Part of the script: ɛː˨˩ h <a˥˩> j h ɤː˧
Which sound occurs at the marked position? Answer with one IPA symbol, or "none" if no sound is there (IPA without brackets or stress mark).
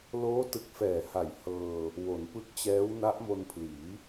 a˨˩